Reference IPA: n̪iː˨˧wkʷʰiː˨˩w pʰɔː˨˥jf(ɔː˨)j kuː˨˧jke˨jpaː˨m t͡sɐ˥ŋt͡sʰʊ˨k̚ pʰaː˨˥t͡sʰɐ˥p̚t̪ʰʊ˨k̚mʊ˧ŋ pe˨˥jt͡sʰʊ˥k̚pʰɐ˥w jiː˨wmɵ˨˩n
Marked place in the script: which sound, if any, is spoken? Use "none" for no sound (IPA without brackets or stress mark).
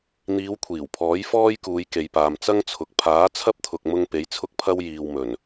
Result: ɔː˥